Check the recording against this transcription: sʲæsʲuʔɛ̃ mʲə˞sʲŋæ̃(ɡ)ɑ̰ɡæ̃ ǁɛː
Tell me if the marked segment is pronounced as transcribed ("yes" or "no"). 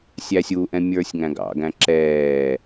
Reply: yes